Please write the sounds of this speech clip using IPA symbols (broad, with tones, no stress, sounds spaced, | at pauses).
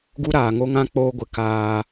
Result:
ɡ u˦ ɾ aː˨ ŋ o˦ ŋ ã˦ k͡p oː˦ ɡʷ ɪ˨ k aː˦